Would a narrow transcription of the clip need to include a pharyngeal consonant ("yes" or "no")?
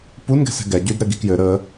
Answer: no